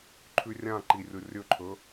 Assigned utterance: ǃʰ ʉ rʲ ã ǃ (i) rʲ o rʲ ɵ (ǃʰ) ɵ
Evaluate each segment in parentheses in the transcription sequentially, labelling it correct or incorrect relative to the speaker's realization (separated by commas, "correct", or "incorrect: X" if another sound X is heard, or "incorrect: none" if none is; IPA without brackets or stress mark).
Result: correct, correct